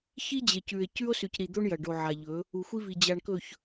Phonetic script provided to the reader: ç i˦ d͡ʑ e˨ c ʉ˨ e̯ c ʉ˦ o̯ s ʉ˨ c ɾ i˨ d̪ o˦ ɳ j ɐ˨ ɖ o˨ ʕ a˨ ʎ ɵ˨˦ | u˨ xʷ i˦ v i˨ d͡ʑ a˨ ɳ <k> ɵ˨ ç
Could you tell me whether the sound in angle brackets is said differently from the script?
no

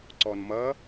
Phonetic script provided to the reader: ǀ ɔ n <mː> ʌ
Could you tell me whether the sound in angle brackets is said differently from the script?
yes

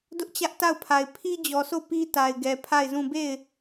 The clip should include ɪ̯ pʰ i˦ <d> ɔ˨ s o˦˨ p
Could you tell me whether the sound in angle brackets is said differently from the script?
yes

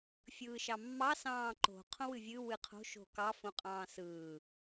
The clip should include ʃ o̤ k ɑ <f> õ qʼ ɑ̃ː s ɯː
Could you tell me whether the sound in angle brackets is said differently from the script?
no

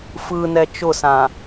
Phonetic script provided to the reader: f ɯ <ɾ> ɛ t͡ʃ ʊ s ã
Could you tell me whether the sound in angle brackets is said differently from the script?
yes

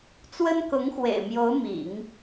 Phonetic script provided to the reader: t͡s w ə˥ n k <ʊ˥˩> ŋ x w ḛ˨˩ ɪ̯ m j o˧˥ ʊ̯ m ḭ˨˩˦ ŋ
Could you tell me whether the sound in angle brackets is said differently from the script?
yes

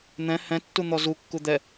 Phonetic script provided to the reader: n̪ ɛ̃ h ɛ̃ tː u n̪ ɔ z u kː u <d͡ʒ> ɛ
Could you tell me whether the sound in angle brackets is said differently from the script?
yes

